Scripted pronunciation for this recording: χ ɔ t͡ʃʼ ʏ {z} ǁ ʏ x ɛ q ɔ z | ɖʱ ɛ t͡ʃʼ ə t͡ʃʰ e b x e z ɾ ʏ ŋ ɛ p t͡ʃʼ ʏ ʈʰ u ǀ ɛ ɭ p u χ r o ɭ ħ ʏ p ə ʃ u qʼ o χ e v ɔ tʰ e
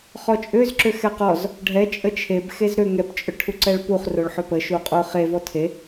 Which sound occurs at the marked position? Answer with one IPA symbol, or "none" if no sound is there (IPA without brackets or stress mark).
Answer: z